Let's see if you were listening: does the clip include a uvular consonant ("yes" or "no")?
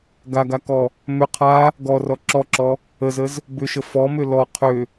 yes